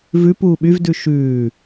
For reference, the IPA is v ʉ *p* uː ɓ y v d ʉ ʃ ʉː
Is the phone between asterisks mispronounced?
no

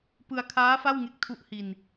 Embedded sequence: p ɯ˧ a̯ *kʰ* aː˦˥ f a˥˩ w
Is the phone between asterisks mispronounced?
no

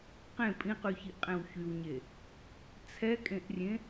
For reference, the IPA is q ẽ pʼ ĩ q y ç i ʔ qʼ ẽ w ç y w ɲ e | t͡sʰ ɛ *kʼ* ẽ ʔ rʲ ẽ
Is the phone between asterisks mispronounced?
no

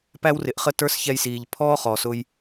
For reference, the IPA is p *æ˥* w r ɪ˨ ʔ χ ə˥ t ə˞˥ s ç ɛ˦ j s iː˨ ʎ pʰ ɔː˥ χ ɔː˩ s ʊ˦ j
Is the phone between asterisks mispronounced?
no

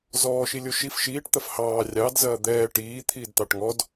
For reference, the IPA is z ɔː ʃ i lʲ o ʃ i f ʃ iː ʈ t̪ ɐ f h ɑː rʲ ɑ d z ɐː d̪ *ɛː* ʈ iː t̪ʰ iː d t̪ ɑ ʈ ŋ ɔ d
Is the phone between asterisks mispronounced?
no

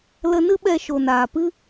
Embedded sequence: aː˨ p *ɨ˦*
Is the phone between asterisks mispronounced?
no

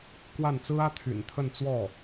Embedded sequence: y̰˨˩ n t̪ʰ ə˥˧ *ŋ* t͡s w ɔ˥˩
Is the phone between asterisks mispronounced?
yes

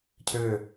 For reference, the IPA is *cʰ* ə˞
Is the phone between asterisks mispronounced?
no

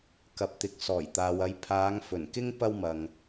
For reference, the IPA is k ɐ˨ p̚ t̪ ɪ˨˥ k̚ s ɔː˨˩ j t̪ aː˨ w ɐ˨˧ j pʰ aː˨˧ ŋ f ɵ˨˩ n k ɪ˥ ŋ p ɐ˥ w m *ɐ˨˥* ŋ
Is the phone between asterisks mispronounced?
yes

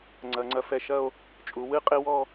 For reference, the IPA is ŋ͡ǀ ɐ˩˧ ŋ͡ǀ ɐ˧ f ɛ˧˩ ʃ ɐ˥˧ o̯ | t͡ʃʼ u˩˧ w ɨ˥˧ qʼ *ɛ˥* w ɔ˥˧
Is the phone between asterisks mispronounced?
yes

